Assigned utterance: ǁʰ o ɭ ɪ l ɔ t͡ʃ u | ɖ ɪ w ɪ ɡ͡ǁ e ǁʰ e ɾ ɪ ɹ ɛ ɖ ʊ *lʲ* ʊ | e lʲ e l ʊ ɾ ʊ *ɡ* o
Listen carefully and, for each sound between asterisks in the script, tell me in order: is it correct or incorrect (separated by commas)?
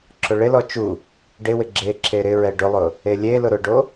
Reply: incorrect, incorrect